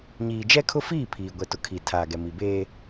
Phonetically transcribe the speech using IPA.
ɲiː˨d͡ʒɛ˦kʰʊ˦fiː˦˨ pʰiː˨ ɡʷɛ˨tʊ˨kʰi˨ tʰaː˨ɡɛ˨mi˨beː˦

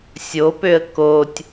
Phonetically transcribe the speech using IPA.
sʲopøə̯ kotʲ

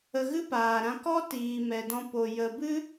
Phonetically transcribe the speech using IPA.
ə˧ɣɨ˦paː˨ɾã˧ kɔ˦tiː˨ mɛ˨dɔ̃˧ po˨ jə˨bɨ˦

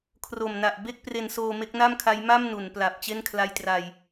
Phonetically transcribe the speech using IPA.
kʰro˨˩mna˨˩ʔ be˥˩k̚ pre˧nsoː˧ me˦˥k̚na˥˩mkʰa˦˥j ma˥˩m nu˩˦npla˨˩p̚ t͡ɕe˥˩nkʰla˧jtra˧j

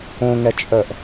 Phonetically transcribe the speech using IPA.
õŋɛt͡ʃʼœʔ

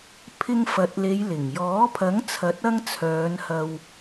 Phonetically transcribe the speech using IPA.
pʰɪ˧ŋfɐ˨t̚ le˨˧jlɪ˨˩ŋjɔː˨˥ pʰɐ˨˥ŋt͡sʰɐ˨˥t̚ ɐ˧ŋ t͡sʰœː˨˧nhɐ˧w

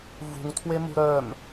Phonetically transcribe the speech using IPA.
vṳŋtʰwemṳ ɾœm

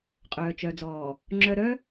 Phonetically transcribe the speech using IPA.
qʼœː˨t͡ʃœ˨d͡zɔː˨ | ŋ͡ǁœ˨ ɾœ˦

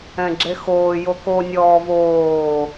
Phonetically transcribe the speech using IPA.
ɛ̃ɡ͡ǁexoː joko nʲɔːvoː

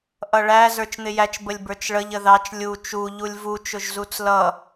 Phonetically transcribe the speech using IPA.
ʔʌɭæ zə˞t͡ʃn̪ɪjæt͡ʃ bəlʲbə˞t͡ʃɭəʎ əðɑt͡ʃ lʲu t͡ʃu ʎulʲvu t͡ʃʊʒzut͡slʌ

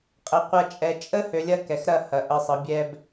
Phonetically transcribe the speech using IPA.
qʼɛ˨qʷɐ˧ t͡ʃʼɛ˨t͡ʃʼə˦ hø˧lʲɐ˦kɛ˨xɾɐ˦˨ hɐ˨ʔə˧sˤə˨˦ bʲɛ˦b

